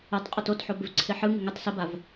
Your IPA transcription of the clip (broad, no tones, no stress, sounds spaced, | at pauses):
ɯ tˤ qʼ o t o t ħ o b ɪ v ǀʰ ɪ ħ ɯ ŋ ɪ ŋ ɘ tˤ s ə b a v